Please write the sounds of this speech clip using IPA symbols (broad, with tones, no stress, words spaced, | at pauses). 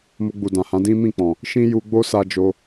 mo˧ɡ͡bu˨dã˨hã˨˦ dĩ˦mĩ˦˨k͡pɔ̃˨ | ʃĩ˦ju˧ ɡ͡bo˦sa˧ d͡ʒo˧